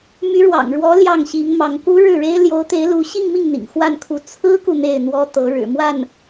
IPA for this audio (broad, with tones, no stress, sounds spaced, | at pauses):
m y˧˥ ɻ w ɑ̰˨˩ ŋ ɻ w ɔ˧˥ l j ɑ˥˩ ŋ ɕ i˧˥ ŋ m ɑ˧˥ ŋ k u˧˥ ɻ ɻ̩˥˩ ɻ e˥ ɪ̯ l j o˧˥ ʊ̯ t̪ e˧˥ ɪ̯ l u˧˥ ɕ i˥˧ ŋ m i˥˩ ŋ n̪ ḭ˨˩ ŋ x w a˥˩ n kʰ u˧˥ t͡sʰ ɹ̩˥ k u˨ n̪ e˥˩ ɪ̯ n̪ w ɔ˥ t̪ ɤ˧˥ ɻ ɻ̩˨˩ m w a˥˩ n